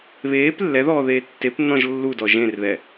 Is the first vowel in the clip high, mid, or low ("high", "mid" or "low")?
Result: mid